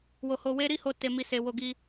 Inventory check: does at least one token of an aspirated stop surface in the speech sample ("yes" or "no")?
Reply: no